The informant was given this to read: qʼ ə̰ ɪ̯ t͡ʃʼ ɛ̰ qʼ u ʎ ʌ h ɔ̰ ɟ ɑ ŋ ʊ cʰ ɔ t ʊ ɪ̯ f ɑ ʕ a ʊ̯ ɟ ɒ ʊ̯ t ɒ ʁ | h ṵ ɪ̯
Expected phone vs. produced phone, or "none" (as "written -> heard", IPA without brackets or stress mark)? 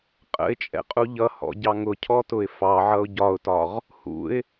a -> ʌ